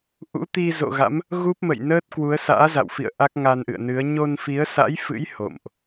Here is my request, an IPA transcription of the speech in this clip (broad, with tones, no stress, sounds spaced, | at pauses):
ʔ ṵ˧˥ t̪ i˧ z o̰˧˨ ɣ a̰˧˥ m | ɣ u˦˥ p̚ m ə̰˧˨ j n əː˦˥ t̚ k w u˨˦ ə̯ s a̰ː˧˥ z a̰˧˨ w f ḭ˧˨ ə̯ ʔ a˦˥ k̚ ŋ a˧ n ʔ ɨ̰˧˨ ə̯ n ɨ˨˦ ə̯ ɲ o˧ n f i˨˦ ə̯ s a̰˧˥ j f ɨ̰˧˥ j h o̰˧˨ m ʔ